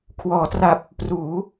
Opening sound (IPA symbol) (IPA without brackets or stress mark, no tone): kʰ